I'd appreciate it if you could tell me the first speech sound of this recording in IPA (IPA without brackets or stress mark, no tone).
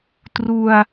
t